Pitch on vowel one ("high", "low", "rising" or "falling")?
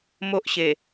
high